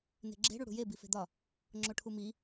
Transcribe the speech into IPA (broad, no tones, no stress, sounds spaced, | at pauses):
n e̤ ɡ͡ǁ e̤ ɽ u ɽ ṳ j e b i f e̤ d̪ ɒ | ŋ͡ǁ o ʈʰ u m i